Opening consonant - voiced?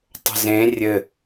no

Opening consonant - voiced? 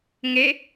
yes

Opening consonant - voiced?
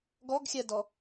yes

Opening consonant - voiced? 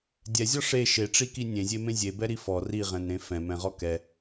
yes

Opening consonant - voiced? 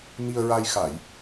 yes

